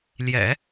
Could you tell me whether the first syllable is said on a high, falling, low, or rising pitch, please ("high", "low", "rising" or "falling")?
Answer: low